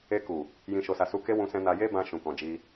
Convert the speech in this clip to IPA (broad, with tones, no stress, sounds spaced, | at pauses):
e˧ k u˨ | j ĩ˨ ʃ o˨ s a˨ s u˧ k e˦ w ũ˧ s ɛ̃˧ n a˧ j e˦ b ã˦ ʃ ũ˧ k ɔ̃˧ d͡ʒ i˧